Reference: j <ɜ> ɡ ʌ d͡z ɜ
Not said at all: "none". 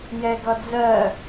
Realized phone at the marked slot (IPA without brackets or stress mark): ɛ